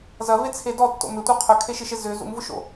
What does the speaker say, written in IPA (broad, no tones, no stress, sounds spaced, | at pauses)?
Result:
z ɐ v e t͡sʰ e d ɔ tː o̰ m ʏ tʷ œ qʰ œ kʰ e ʃ ɪ ʃ e z ʏ z ṵ m v ʊ ʃ o̰